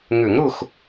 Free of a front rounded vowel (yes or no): no